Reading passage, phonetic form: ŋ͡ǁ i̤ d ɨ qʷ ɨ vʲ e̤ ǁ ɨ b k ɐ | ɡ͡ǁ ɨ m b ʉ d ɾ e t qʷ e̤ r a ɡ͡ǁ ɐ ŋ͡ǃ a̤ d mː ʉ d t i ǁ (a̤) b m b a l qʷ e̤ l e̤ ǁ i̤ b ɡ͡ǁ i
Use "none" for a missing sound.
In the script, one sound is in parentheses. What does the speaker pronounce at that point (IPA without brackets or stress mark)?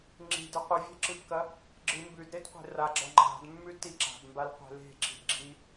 a̤